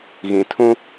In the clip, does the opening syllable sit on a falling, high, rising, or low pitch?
low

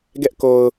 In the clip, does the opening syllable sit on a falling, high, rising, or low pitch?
high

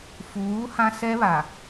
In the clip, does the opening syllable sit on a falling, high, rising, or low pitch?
rising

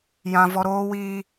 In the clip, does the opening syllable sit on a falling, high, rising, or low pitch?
high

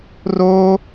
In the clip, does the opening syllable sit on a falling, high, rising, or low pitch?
high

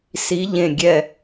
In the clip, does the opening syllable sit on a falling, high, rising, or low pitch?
rising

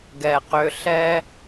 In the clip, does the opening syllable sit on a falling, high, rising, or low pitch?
low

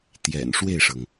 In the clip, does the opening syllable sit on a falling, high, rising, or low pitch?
low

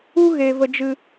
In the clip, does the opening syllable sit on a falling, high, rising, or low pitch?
high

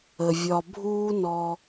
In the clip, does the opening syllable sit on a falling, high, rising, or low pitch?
low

